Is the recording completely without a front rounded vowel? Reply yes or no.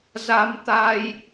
yes